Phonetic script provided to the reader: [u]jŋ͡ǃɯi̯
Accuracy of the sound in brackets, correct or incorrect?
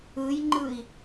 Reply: incorrect